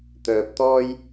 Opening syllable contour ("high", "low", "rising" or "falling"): low